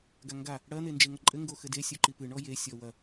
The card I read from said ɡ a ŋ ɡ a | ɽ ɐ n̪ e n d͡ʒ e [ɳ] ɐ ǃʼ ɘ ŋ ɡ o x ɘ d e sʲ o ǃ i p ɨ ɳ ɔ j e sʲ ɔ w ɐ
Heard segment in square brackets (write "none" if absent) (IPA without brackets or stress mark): ŋ